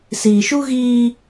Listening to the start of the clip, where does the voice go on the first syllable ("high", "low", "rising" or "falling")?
low